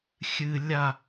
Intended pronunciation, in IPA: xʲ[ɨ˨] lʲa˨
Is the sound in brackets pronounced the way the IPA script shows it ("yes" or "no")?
yes